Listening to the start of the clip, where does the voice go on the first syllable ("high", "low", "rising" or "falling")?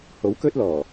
rising